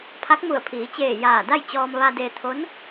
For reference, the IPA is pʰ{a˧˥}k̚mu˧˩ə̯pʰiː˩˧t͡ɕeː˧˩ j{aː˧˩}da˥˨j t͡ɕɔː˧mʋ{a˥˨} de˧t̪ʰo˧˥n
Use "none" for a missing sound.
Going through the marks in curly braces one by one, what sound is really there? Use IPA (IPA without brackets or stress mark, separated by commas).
a˧˥, aː˧˩, a˧